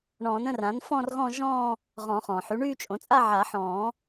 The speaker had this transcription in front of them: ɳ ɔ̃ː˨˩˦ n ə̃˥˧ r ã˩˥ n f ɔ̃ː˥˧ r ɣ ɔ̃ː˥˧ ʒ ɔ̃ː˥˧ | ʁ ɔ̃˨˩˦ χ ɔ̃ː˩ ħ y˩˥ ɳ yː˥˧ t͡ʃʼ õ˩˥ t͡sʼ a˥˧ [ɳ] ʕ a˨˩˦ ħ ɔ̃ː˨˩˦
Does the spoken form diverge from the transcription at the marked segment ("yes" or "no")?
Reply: yes